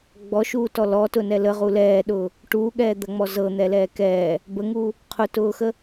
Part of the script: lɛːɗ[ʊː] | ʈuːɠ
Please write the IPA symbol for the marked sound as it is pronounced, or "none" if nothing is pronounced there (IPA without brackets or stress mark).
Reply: ʊː